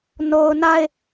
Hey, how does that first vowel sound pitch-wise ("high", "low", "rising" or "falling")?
low